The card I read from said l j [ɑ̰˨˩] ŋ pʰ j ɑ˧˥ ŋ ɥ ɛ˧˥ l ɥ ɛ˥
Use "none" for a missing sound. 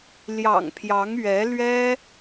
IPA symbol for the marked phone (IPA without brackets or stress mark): ɑ̰˨˩